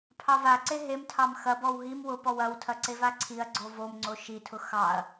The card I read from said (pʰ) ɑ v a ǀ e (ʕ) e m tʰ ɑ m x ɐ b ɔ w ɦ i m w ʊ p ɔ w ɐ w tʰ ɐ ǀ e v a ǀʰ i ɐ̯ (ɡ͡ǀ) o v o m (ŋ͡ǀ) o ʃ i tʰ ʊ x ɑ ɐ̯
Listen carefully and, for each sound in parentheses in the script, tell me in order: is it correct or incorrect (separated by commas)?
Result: correct, incorrect, correct, correct